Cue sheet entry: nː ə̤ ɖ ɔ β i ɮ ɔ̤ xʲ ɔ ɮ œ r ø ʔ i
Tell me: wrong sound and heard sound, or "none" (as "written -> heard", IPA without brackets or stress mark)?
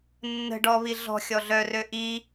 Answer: none